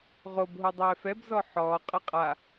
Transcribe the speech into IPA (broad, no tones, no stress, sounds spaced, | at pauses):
ʁ o b ɦ o dˤ ɛː f ɛ b z ɔ ħ ɔː qʼ ɘ qʼ a